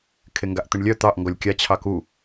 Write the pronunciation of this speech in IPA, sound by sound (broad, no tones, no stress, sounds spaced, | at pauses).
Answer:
kʰ e ŋ ɡ a ʔ t̪ ɪ ɳ lʲ œ t̪ ɑ ʔ ŋ ɡ ɔ lʲ kʲ a t͡ɕʰ ɑ k u